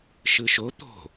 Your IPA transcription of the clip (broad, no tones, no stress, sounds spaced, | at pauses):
ʃ ɯ ʃ o t̪ o̤